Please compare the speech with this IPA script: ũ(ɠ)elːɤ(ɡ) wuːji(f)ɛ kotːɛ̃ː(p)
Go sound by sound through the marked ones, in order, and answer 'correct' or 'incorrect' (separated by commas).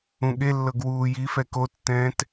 correct, correct, correct, incorrect